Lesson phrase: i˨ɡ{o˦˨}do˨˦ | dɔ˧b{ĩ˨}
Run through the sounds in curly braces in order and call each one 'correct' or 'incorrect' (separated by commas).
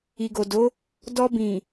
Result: incorrect, correct